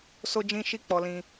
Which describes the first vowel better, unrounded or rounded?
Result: rounded